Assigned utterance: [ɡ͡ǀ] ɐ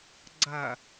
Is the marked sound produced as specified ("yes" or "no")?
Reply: yes